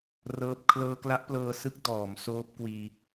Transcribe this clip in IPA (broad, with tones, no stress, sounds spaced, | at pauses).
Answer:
r ɤː˦˥ p̚ kʰ l ɤː˧ k l a˦˥ ʔ p l ɤː˧ s ɯ˦˥ k̚ d ɔː˩˦ m s oː˦˥ p̚ k w iː˧